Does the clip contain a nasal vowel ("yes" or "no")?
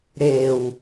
no